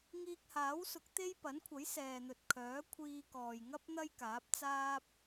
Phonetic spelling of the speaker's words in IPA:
ŋ iː˧ k̚ h aː˨˥ w s ʊ˨˥ k̚ t̪ e˥ j p ɐ˨˥ n kʷʰ ɐ˨˥ j s ɛː˨ n̪ ɵ˨ t̚ kʰ œː˨˥ kʷʰ iː˧ k ɔː˨ j ŋ ɐ˥ p̚ n̪ ɐ˥ j k aː˨˥ p̚ t͡s aː˥ p̚

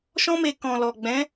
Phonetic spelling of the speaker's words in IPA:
ʃ ɔ̃˧ m e˨ k ɔ̃˨ l ɔ˨ ɡ͡b ɛ̃˨˦

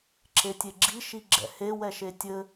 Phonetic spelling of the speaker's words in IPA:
ǁ e tʲ e ɡ͡ǁ i ʃ i ɡ͡ǁ ɛ̰ h e w ɛ ʃ e tʲ ɘ

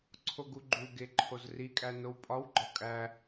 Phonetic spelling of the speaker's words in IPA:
ǀʰ o ɡ u ɡ͡ǃ u ɡ e ǃʰ o z r i kʼ æ n o w pʼ ɒ w ɡ͡ǃ ɒ kʼ æ

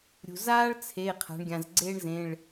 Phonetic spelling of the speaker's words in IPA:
ɾʲ ṳ˩ z aː˥ ɭ t͡sʰ e˩˧˩ qʰ a̤˩˧ ɳ ɡʲ ã˩ z ɡ͡ǀ eː˥ ɳ z ẽ˩˧˩ ɭ

